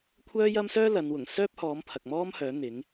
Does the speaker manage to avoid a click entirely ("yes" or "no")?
yes